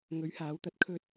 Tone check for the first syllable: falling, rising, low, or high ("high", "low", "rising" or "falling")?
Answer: rising